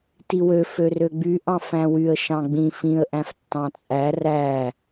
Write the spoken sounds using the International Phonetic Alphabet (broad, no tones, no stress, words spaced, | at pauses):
tiwø førøɡ͡by ʔɑ̃fæ̃wyə̯ ʃɑ̃ɡ͡bĩ fĩə̯ ʔæ̃ftːɑ̃t͡sʼæ ræ